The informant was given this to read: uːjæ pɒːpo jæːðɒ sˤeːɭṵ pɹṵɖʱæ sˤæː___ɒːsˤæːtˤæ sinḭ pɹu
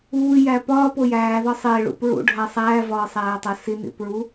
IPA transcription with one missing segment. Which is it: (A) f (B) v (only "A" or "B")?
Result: B